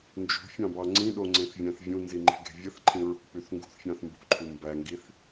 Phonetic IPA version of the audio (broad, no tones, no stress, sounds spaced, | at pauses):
n d͡ʒ ṳ fʲ ɑ̃ b ɑ ŋ͡ǀ ĩ ɗ o ŋ͡ǀ ẽ θ vʲ æ̃ θ vʲ ũ n z i ŋ͡ǃ e̤ ɡ e̤ vʲ ɯ θ ǃʰ ĩ ɹ ṳ k͡p y θ ŋ ɡ ṳ θ fʲ ɑ̃ θ m b ṳ ǃʰ u m b æ ŋ ɡ i θ